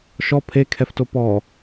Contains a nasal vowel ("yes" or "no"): no